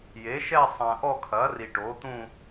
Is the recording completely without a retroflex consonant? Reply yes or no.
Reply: no